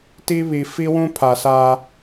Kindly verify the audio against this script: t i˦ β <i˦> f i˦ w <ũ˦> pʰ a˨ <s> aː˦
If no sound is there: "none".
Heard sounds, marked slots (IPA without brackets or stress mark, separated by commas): i˨, ũ˦, s